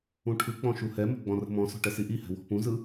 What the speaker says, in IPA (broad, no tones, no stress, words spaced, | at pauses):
ũʈʰɯk͡pɔ̃ ʃuhɛmə̤ ɡ͡bɔ̃rə̤mɔ̃sɔ̤ ʈɛsiʔihɛ̤ wɔ̤pũzɯ